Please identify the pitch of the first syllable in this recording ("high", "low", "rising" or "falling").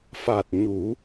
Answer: low